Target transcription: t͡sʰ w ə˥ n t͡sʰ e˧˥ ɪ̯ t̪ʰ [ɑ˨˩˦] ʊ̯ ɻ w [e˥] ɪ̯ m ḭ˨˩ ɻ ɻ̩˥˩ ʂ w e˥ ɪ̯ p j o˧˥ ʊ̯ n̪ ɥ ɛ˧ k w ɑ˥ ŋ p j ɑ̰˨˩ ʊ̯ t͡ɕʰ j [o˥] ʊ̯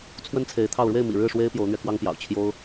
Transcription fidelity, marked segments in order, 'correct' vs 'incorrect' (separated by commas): incorrect, incorrect, correct